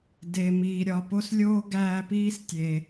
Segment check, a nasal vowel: absent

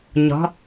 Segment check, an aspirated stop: absent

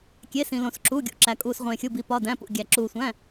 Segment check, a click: present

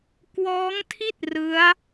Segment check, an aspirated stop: present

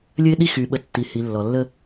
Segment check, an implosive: present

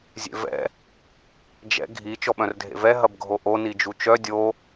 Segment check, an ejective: absent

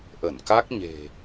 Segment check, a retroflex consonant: absent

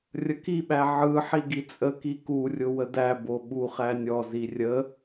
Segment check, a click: absent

